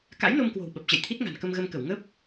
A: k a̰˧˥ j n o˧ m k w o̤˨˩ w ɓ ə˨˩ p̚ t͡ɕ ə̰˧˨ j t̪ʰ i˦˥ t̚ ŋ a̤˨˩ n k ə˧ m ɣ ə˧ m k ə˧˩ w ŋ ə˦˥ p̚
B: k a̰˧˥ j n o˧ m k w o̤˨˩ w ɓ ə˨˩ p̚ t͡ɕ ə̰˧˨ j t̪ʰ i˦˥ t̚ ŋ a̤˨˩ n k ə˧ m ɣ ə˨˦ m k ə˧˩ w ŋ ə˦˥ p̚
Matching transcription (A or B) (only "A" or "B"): A